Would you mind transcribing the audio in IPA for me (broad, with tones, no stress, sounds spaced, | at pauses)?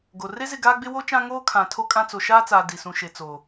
ɡ o˨ r e˦ z ɪ˦˨ ɡ aː˦ ɡ͡b ɪ˦ w o˦ t͡ʃ ã˦ ŋ oː˦ kʰ ã˨ tʰ o˦ kʼ ã˦ t͡s o˨ ʃ aː˦ t͡s aː˨ d i˨ s ũ˨ ʃ e˨ t͡s oː˨